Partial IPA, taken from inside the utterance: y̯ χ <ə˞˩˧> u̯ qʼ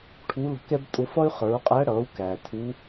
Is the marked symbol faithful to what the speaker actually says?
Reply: yes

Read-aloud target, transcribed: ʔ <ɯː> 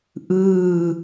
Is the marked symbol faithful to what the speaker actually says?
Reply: yes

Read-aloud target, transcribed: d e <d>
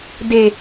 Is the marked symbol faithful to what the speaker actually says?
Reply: no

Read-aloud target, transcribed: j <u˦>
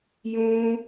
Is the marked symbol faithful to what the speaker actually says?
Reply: no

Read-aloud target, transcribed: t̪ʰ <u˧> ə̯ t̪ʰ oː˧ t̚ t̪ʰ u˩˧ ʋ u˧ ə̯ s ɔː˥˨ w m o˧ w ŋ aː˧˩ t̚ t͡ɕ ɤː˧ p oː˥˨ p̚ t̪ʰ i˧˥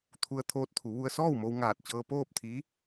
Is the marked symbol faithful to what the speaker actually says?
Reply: yes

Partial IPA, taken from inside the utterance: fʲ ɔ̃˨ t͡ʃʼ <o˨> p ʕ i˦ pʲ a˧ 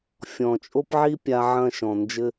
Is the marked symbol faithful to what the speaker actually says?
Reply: no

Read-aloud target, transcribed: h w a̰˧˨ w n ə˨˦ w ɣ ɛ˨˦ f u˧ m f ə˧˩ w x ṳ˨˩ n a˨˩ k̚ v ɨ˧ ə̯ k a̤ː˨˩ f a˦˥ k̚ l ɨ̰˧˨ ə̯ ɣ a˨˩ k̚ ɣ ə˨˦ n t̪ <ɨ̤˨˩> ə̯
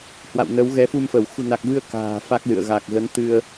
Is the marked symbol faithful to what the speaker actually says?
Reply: no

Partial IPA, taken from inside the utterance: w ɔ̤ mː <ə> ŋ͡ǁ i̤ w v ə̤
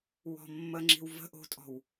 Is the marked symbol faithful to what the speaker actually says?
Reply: yes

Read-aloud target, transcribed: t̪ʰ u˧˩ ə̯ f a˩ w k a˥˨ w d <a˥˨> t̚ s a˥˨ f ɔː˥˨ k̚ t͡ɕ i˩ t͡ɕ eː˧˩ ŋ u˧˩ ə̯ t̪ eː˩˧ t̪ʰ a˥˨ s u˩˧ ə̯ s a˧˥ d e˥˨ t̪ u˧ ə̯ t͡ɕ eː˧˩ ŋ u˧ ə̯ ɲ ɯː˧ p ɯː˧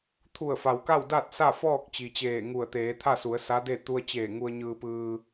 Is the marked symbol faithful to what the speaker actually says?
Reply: yes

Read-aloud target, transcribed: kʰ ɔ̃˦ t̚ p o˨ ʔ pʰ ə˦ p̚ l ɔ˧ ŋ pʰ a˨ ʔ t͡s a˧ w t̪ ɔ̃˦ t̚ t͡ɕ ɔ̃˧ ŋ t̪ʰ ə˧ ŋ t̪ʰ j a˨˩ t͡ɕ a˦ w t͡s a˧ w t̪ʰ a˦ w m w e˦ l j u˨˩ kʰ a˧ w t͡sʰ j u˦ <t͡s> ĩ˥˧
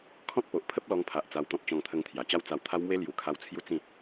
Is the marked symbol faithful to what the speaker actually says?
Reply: yes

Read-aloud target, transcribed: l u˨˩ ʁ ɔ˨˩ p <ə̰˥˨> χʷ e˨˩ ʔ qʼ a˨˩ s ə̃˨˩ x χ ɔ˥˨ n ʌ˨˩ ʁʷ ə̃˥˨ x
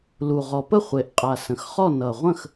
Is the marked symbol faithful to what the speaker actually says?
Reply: no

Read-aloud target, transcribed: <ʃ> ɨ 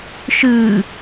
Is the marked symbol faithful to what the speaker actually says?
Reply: yes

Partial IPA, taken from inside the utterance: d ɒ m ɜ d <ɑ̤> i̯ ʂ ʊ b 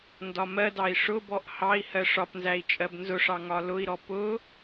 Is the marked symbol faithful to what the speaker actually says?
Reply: no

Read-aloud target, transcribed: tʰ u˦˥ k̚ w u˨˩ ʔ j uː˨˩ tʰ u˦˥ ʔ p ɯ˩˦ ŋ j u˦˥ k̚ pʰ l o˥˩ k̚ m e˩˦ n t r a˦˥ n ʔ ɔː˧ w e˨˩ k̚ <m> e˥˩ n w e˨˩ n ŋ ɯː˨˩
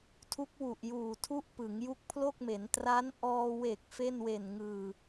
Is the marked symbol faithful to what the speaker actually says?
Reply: no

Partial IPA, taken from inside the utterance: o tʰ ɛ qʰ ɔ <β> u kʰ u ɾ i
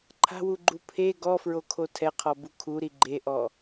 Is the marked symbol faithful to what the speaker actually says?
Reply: no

